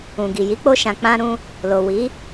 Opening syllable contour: low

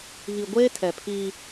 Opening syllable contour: low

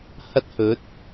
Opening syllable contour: high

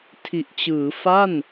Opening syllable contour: low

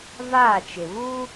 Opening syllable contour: falling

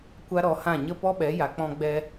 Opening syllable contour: high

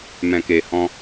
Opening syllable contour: low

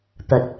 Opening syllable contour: low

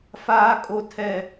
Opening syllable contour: high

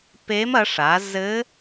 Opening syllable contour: rising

